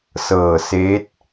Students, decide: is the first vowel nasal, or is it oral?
oral